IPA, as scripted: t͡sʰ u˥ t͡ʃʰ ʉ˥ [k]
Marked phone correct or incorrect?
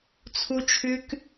correct